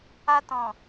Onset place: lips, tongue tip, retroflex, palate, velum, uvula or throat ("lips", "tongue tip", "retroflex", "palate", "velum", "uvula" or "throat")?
tongue tip